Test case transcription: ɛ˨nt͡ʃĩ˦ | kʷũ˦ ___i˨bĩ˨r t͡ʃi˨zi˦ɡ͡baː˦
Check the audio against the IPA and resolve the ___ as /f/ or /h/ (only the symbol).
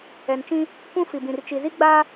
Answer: f